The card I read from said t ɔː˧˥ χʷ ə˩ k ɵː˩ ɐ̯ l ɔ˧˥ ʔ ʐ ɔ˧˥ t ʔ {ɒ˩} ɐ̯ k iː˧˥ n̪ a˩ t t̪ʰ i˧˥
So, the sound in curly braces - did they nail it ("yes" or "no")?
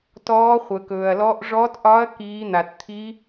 no